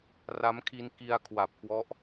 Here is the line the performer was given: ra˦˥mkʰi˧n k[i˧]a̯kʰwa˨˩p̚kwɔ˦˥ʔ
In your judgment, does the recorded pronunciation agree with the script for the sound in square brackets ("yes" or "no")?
yes